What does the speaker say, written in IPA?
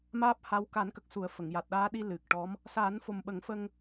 m aː˦˥ p̚ h a˧˥ w k a˨˩˦ n k ə˨˩ k̚ s u˨˩˦ ə̯ f ə˨˩˨ ŋ j a˨˩ t̚ ɗ aː˧˥ ɗ i˧ l ɨ˨˩ k̚ ʈ ɔ˧˥ m | s aː˨˩˦ n f o˨˩ m ɓ ə˨˩˦ ŋ f ə˧ ŋ

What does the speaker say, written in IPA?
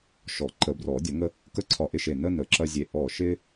ʃ ɔ˨˩˦ ǃ ə˨˩˦ b r ɔ˨˩˦ dʲ ɐ˨˩˦ ŋ ə˦ | k ə˥˨ ǀʰ ɒ˧˩ ʔ ɪ˥˨ ʃ e˧˩ n ə˦ n ə˨˩˦ ǁ ɐ˦ zʲ e˧˩ ʔ ɔ˧˩ ʃ ɪ˦

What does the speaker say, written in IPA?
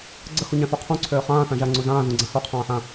ɡ͡ǀ ə x u ɲ ã θ u qʰ ũ ǀʰ øː χ ãː θ ã ʒ a ŋ͡ǀ u z ãː z ũ ɡ͡ǀ ã h u qʰ ãː ħ ã

